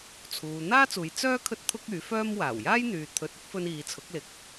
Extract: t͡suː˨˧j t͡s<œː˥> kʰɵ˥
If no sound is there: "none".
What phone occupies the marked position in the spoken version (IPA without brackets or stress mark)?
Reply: œː˥